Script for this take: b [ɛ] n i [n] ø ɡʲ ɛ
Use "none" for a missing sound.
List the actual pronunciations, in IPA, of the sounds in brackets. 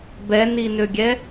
ɛ, n

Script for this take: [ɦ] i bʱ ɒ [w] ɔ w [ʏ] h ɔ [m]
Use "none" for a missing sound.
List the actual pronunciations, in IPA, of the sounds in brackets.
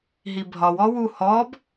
ɦ, w, u, b

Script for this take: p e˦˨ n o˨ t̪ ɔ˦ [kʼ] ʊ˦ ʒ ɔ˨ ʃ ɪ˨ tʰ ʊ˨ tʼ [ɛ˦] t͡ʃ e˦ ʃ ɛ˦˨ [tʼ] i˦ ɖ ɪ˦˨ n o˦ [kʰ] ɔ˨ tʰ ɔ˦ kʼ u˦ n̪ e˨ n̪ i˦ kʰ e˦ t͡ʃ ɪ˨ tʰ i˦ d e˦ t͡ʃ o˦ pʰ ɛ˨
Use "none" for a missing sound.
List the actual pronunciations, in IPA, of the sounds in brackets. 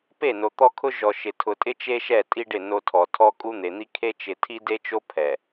kʰ, ɪ˦, tʼ, tʰ

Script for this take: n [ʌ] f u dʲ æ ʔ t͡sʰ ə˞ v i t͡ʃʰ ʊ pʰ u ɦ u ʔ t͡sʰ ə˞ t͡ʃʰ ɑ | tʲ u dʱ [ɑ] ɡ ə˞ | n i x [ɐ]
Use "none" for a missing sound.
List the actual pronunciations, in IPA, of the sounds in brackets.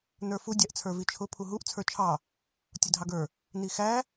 ə˞, ɑ, æ

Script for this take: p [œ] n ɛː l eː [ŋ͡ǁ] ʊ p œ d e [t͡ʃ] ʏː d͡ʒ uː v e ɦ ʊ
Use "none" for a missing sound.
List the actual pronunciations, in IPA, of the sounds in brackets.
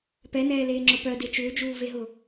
ɛ, ŋ͡ǁ, t͡ʃ

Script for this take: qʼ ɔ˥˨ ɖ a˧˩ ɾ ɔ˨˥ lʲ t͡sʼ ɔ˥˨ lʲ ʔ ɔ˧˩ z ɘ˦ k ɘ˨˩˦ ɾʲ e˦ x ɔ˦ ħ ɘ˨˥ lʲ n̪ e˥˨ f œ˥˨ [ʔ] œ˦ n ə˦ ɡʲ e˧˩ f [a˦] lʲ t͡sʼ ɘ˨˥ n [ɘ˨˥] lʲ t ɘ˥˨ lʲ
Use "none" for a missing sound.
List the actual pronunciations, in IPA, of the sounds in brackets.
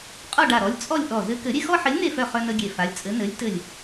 χ, a˨˥, ɘ˨˥

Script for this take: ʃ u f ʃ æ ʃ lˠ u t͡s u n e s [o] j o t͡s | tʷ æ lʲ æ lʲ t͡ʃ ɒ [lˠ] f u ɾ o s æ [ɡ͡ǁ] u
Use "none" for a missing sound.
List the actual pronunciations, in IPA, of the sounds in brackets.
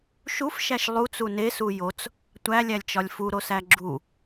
u, lʲ, ɡ͡ǁ

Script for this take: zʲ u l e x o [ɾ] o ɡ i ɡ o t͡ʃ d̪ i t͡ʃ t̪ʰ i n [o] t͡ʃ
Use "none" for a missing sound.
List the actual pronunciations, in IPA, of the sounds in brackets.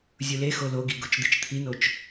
l, o

